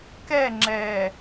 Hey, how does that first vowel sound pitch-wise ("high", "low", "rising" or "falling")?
falling